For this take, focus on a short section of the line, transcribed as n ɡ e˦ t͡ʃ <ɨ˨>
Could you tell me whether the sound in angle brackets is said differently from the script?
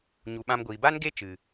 no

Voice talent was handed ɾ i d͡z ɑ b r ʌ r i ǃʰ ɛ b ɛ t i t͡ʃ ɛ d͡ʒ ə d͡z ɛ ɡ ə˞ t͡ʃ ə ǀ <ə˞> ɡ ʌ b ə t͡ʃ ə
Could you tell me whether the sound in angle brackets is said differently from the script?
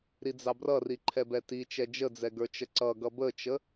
yes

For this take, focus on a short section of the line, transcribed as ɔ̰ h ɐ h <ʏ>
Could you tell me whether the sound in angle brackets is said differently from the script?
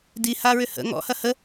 yes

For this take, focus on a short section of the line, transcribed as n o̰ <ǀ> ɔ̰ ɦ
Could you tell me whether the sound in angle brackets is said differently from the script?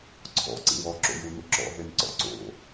yes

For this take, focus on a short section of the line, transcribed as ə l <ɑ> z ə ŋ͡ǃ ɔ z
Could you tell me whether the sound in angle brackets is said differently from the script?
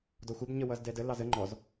no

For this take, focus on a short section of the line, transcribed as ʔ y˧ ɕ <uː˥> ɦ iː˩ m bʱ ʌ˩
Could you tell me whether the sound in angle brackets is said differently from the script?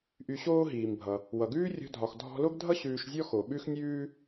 yes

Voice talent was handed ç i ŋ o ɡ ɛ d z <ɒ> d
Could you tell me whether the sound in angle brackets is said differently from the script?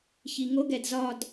no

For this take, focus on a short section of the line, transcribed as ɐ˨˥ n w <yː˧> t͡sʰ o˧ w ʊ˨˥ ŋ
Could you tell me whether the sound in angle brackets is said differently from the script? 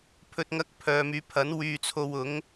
no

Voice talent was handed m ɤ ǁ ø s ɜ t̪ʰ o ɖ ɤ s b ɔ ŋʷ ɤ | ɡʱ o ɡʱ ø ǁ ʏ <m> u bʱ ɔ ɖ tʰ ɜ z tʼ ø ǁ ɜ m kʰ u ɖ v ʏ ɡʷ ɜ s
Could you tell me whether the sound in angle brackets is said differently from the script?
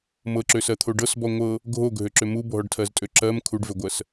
no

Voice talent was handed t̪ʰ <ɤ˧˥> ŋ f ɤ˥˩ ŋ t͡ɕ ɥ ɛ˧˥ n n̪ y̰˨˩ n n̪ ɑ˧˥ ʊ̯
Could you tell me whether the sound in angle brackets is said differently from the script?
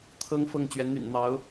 yes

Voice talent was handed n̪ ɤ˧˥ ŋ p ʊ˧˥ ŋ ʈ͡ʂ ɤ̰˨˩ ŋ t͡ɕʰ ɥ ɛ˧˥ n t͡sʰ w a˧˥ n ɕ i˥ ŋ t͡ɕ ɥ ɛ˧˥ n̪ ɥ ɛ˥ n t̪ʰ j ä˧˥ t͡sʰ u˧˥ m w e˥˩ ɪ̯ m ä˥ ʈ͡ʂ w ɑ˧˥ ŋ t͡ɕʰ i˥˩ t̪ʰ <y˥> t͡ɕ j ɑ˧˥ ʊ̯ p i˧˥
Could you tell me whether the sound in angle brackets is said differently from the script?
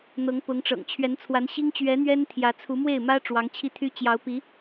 no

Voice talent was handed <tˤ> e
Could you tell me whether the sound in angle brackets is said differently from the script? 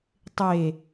no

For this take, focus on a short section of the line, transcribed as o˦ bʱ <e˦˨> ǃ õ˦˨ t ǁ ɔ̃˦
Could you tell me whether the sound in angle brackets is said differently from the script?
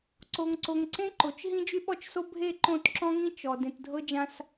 no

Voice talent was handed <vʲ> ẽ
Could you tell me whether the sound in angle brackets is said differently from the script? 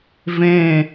yes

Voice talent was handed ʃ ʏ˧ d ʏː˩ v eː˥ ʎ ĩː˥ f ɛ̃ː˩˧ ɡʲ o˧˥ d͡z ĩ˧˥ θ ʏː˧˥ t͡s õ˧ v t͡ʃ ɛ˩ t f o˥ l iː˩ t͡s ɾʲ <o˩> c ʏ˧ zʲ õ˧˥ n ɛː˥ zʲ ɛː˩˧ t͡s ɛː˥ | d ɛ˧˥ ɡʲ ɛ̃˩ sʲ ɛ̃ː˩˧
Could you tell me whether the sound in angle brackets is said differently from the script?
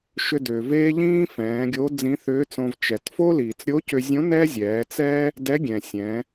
yes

